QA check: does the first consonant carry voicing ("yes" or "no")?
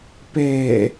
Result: no